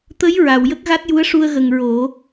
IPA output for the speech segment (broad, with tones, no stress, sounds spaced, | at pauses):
t̪ ə˧˥ j ɹ a˨˩˨ w j ə˦˥ k̚ ɣ a˦˥ t̚ j u˧˥ ə̯ ʂ u˧ ə̯ ɣ ə˨˩ ŋ ɹ o˨˩˦